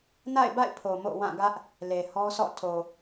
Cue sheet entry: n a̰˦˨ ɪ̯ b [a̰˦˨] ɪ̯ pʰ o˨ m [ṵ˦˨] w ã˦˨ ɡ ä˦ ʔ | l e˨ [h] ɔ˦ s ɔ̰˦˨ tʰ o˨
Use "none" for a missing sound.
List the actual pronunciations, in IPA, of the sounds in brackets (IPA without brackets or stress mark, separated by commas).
a̰˦˨, o̰˦˨, h